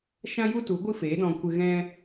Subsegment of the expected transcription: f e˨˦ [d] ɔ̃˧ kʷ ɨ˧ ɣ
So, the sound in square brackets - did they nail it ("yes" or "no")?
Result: yes